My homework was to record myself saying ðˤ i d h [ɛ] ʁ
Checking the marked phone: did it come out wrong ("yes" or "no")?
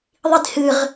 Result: yes